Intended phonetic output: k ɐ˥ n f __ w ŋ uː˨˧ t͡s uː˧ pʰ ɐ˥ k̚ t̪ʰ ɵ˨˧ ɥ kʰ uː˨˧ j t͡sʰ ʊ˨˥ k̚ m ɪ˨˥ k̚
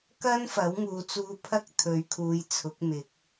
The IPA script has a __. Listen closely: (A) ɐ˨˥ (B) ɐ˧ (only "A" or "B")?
A